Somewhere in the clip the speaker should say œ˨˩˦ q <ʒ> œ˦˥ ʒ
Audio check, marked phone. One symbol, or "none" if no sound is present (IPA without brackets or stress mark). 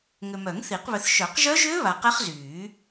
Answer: ʒ